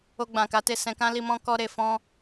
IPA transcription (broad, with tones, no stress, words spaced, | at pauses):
o˧ɡ͡bã˨ka˨˦ te˧ sɛ̃˧kã˦li˧mɔ̃˦ kɔ˧ ɾe˨fɔ̃˧